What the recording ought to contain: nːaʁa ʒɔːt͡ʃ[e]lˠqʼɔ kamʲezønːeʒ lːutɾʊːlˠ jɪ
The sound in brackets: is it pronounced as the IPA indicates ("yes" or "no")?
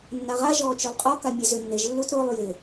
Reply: no